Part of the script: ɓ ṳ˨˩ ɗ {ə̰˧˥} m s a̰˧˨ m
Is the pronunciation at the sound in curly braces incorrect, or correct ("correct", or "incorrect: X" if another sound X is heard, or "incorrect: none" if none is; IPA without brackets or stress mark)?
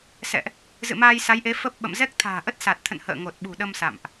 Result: incorrect: ə˧